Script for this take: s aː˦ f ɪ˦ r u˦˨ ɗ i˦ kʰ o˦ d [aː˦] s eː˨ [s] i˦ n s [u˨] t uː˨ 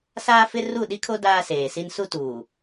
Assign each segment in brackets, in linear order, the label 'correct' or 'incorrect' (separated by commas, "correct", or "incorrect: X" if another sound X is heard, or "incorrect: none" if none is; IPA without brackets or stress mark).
correct, correct, incorrect: u˦